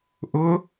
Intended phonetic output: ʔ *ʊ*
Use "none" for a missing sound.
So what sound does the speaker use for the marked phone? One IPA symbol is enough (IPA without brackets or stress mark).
ʊ